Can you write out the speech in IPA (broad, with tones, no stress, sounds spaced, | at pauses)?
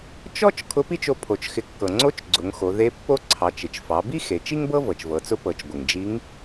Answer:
t͡ʃ ɔ˥ t͡ʃ kʰ ʊ˧˥ p i˥ t͡ʃ o˧ pʰ o˩ t͡ʃ x ɪ˩˧ kː ɤ˩ ŋ͡ǀ o˧˥ t͡ʃ ɡ͡ǀ ʊ˩˧ ŋ x o˩˧ ð e˧˥ pː o˥ ǀʰ ɑ˩˧ t͡ʃ ɪ˩ t͡ʃ f ɑ˩˧ b i˥ x e˩˧ t͡ʃ i˥ ŋ b ɤ˥ v ɤ˩ t͡ʃ v ɤ˩˧ t͡s ʊ˧˥ p ɤ˩˧ t͡ʃ ɡʷ ɪ˩ ŋ d͡ʒ i˧˥ ŋ